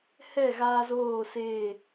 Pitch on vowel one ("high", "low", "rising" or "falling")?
falling